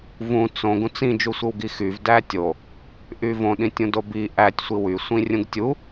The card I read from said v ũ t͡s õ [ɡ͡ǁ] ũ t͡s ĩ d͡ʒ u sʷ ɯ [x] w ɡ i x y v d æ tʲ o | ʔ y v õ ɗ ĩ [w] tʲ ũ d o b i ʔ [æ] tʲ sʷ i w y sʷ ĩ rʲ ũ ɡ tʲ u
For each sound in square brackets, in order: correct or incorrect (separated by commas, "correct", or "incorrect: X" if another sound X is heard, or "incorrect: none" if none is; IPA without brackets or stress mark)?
incorrect: ɡ, incorrect: none, incorrect: none, correct